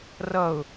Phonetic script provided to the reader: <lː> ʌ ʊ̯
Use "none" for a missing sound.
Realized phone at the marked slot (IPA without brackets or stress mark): r